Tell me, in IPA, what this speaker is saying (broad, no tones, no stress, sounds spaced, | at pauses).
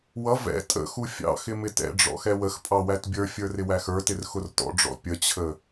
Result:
w ʌ v ɛ̰ tʼ ə̰ x u fʲ ɑ̰ x ɪ m ɪ t ɛ̰ ɖ͡ʐ ɔ̰ x ɛ w ə x pʼ ɑ w æ t bʲ ə˞ fʲ ə˞ r ɪ w æ x ə˞ t ɪ r x ʊ r t ɔ̰ ɖ͡ʐ ɔ̰ pʲ ə t͡ɕʰ ə